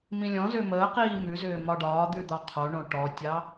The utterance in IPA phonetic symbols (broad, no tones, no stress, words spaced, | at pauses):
mĩlʲɔ̃zʏː məːqiː mʉzʏː mɒɖɒːd̪ʉ d̪ɒqʰoɳõ ʈɔtʲɑ